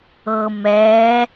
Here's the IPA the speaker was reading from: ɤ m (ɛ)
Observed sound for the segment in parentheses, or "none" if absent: ɛː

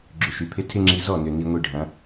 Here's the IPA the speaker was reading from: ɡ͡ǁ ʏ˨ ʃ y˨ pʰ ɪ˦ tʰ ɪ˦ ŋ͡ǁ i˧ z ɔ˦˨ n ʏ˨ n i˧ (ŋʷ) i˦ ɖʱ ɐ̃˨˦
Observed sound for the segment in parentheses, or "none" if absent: ŋʷ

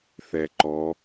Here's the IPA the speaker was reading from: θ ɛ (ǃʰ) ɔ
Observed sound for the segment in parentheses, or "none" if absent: ǃ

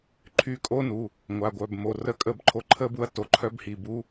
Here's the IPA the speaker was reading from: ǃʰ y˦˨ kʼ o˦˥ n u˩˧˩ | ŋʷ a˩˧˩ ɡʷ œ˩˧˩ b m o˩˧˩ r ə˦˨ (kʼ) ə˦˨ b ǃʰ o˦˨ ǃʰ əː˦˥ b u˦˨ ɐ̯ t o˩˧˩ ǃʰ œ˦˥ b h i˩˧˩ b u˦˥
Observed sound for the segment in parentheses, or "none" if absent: kʼ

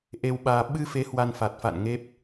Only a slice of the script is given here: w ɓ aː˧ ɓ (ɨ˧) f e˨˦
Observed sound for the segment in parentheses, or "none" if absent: ɨ˧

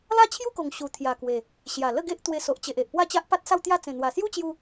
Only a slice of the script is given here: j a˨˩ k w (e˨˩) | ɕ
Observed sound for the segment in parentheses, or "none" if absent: e˨˩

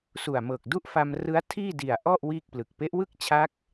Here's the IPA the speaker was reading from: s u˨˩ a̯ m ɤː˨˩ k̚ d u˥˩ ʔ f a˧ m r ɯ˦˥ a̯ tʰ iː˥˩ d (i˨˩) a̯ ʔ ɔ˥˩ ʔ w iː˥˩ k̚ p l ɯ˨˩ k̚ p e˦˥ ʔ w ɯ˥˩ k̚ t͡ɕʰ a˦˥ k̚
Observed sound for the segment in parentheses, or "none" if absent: i˨˩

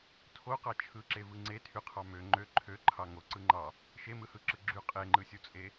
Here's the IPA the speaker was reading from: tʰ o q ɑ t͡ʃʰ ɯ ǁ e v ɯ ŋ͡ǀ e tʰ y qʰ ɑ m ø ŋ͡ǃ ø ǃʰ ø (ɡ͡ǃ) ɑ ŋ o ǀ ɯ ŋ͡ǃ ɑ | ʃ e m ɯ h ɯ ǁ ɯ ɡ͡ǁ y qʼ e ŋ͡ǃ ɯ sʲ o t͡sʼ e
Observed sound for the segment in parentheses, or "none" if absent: ǃʰ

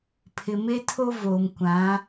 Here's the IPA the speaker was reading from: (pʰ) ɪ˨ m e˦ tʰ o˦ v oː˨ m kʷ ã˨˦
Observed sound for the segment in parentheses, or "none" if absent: pʰ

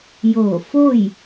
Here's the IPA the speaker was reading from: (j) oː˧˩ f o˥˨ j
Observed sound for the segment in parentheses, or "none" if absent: j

